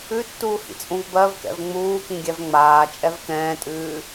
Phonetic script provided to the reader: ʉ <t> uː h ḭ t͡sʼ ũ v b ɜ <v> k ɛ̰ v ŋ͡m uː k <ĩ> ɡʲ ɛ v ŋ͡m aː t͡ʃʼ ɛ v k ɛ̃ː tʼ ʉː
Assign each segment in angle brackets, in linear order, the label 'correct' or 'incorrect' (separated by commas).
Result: incorrect, correct, correct